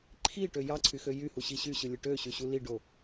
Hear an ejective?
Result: no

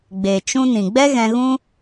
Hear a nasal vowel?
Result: yes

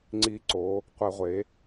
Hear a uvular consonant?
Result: yes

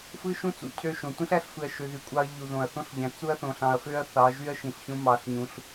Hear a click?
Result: no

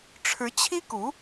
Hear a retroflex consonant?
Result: yes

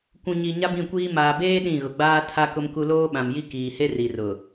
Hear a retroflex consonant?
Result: no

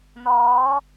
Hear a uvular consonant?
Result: no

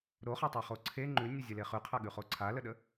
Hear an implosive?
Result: yes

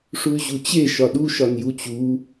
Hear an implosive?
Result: yes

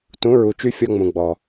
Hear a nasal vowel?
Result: yes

